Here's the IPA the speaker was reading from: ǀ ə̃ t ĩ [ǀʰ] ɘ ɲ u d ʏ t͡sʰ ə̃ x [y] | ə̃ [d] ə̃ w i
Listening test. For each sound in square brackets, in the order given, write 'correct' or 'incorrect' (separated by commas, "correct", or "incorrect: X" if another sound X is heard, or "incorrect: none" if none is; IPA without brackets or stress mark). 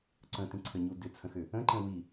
correct, incorrect: ʏ, incorrect: ǃ